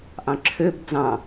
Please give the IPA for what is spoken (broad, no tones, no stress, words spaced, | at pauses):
ʔɑ̃ǁʰøb d͡zɑ̃